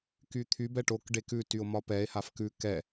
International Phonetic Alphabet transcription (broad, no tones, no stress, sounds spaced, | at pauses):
k y t̪ʰ y b ɛ ʈ o k ɖ e k ʉ t y o̯ m ɒ p ɛ e̯ h a f k ʉ k ɛ